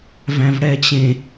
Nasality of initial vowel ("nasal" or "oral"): nasal